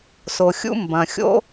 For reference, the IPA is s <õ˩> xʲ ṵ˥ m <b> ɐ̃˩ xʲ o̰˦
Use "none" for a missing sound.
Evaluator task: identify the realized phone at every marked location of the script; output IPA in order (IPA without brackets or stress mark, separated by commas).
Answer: o˩, b